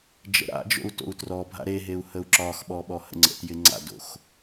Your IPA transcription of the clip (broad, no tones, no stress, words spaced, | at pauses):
d͡ʒə̰ɾa̰d͡ʒo̰u̯ to̰u̯trɔbʱa̰ ɾeɦeu̯ həu̯ǁɒxɓɔ ɓɔhə̰ŋ͡ǀə̰tjɪ ŋ͡ǀa̰do̰x